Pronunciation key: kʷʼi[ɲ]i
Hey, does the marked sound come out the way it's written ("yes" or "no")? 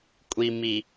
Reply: no